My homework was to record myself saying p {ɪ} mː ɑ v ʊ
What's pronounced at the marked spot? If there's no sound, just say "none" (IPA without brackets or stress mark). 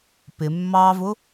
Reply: ɪ